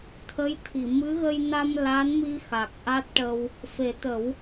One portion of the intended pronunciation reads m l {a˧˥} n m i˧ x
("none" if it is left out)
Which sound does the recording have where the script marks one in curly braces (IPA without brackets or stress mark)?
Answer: a˧˥